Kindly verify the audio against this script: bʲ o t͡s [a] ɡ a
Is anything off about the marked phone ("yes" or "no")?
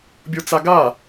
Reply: no